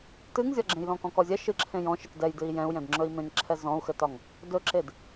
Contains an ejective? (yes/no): no